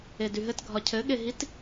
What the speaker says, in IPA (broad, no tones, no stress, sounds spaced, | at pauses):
e d y ɦ ɘ t ɡʱ ɒ cʰ ɘ ɠ e ɦ i t